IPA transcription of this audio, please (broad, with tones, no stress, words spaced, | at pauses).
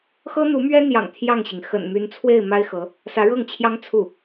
xɤ˥n̪u˧˥mɥɛ˥n̪jɑ̰˨˩ŋ t̪ʰjɑ˥˩ŋɕi˩ŋ xə̰˨˩nmy˧˥nt͡sʰwe˥˩ɪ̯ ma˥ɪ̯xɤ˧˥ | sä˧˥ɻɤ˥˩ŋt͡ɕʰjɑ˥ŋ t͡sʰu˥˩